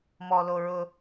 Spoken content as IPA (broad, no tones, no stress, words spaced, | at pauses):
mɔloɹʊ